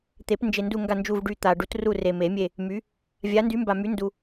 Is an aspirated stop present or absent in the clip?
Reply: absent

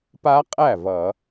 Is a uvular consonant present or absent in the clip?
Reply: present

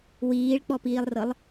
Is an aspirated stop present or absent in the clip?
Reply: absent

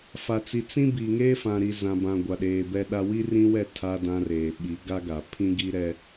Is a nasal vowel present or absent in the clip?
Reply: present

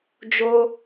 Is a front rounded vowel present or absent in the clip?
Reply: absent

